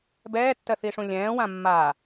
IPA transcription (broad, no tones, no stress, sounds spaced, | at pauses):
b ɛː tː ɜ θ i ʂ ũ lʲ ɛ̃ː w ã mː a